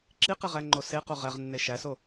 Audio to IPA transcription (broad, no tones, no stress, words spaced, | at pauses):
ǁiqeʁæŋ͡ǃo seqo ʁæʁnːe ʃæso